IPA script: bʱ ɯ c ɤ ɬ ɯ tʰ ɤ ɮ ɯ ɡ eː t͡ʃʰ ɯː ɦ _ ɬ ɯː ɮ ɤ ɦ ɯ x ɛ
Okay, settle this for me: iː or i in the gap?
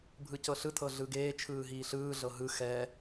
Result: iː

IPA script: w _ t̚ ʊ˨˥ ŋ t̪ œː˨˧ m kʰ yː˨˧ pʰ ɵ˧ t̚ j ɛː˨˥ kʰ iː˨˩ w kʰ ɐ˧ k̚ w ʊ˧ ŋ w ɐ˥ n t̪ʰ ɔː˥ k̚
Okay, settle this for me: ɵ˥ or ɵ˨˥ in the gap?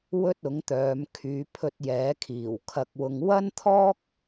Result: ɵ˥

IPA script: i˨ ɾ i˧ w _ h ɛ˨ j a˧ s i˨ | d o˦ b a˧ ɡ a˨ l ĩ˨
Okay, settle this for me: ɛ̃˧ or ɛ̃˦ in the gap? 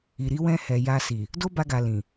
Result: ɛ̃˧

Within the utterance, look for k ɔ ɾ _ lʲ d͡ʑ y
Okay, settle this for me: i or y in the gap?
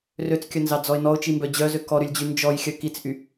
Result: y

